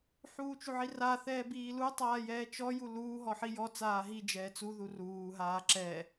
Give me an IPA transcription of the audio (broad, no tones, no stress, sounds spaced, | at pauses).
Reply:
ħ uː t͡ʃ u ʕ i r a θ ɛː b iː l u tˤ aː j ɛː t͡ʃ ɔ j u l uː ɦ ɔ ħ i j ɔ t͡s aː ɦ i d͡ʒ ɛː t͡s u ð u r uː ɦ aː ǁ ɛ